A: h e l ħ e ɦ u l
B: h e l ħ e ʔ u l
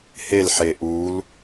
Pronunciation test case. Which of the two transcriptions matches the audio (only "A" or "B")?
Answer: B